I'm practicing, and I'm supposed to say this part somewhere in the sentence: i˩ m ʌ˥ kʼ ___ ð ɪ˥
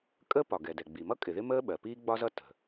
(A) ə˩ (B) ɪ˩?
B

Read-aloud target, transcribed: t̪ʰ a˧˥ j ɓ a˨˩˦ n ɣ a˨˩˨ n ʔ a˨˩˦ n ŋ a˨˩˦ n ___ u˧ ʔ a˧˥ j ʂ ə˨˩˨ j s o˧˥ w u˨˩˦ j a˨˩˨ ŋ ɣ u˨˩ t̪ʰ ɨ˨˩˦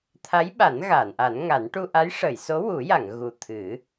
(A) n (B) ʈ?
B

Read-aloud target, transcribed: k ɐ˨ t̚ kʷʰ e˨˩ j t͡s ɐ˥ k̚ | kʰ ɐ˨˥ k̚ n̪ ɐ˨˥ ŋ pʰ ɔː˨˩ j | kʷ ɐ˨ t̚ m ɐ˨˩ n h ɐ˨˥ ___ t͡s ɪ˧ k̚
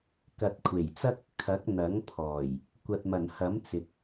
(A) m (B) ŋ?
A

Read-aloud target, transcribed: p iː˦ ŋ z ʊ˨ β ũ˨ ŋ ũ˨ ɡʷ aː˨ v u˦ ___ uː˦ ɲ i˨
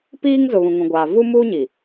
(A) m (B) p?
A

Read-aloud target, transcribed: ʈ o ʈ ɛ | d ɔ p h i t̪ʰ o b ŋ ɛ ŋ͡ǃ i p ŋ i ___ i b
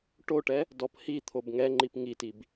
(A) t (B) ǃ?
A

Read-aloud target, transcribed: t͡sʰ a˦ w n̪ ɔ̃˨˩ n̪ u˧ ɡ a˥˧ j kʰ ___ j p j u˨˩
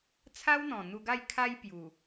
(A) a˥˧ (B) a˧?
B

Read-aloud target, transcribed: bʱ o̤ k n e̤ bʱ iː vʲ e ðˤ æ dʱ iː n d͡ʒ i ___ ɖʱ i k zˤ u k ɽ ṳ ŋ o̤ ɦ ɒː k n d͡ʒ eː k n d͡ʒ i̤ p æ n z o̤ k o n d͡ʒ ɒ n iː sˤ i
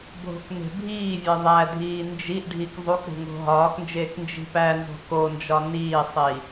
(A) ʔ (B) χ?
A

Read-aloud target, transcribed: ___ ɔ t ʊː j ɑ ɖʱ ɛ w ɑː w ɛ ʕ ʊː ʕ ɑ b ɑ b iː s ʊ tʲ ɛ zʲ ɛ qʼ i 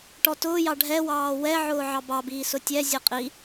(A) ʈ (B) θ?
A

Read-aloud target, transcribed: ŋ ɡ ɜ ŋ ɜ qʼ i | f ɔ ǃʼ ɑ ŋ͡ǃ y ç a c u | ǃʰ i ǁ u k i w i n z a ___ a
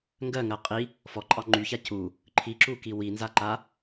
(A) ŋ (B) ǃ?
B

